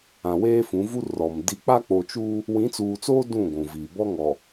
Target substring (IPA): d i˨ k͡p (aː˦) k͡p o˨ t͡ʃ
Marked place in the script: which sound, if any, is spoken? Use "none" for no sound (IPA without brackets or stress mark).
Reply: a˦